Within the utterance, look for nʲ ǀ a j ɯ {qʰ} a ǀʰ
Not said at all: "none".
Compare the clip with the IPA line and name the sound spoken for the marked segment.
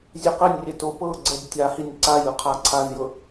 qʰ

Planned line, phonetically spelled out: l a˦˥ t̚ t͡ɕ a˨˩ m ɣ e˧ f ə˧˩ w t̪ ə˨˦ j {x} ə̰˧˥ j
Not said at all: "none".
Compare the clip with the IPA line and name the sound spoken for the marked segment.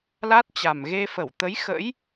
x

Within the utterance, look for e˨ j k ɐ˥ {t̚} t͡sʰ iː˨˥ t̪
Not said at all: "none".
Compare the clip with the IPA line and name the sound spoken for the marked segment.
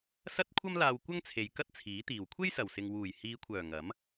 t̚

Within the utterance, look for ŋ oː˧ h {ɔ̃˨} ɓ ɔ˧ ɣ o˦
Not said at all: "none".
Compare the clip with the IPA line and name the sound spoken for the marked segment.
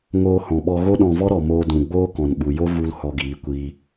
ɔ̃˨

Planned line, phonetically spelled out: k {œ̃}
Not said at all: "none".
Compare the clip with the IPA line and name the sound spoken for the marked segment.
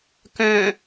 œ̃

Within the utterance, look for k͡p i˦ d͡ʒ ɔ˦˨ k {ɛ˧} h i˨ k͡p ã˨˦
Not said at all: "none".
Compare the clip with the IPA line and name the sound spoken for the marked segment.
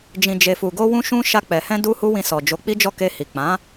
e˧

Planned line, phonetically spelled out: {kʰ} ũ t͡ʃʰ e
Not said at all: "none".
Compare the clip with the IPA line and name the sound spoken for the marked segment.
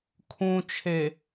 kʰ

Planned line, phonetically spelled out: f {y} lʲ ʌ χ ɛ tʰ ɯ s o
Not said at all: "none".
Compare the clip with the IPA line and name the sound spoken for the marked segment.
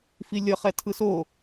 i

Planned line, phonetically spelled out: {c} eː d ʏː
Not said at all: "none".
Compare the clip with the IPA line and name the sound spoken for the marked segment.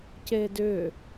c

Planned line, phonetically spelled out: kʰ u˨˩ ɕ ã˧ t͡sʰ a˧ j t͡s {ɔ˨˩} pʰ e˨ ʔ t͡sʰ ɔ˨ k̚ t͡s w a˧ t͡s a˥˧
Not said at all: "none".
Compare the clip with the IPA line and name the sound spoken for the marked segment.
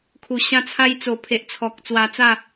o˨˩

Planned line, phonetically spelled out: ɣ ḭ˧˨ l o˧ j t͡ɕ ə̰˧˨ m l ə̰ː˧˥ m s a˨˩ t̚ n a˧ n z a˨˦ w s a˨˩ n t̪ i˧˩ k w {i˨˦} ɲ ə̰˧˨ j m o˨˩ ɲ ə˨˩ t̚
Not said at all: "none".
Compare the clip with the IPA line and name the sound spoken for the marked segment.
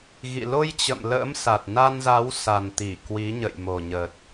i˨˦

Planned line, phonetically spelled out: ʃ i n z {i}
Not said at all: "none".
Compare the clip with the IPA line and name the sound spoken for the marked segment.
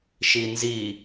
i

